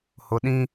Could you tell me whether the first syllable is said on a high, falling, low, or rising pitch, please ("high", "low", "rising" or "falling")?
rising